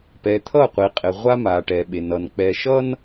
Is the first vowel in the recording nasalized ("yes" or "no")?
no